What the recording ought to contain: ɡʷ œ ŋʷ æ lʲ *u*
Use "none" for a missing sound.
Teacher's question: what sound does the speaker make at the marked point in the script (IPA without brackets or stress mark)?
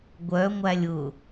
ʊ